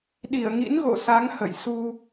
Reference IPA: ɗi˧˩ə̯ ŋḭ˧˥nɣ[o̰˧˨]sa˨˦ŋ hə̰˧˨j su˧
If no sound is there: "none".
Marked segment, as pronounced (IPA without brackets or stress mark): o̰˧˨